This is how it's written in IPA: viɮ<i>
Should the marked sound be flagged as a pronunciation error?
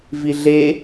yes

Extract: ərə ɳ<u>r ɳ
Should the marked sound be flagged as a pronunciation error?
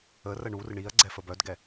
no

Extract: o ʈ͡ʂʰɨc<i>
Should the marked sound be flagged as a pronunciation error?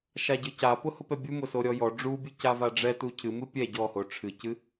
yes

